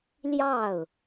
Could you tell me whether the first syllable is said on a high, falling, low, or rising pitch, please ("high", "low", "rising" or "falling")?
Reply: falling